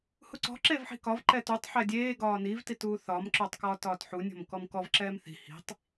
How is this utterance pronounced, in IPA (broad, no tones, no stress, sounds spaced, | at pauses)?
h u ǀ ɔ̤ ǁ eː v ħ i̤ k ɒ v ǃ ɛ t u tˤ ħ ɛ dʲ eː ɡ ɒː n i v t i t uː θ ɒ m ǁ ʊː tˤ k ɒː t ɒː t ħ u nʲ ɔ̤ m k ɔ m k ɔ v ǁ ɛː m θ i̤ h i̤ tˤ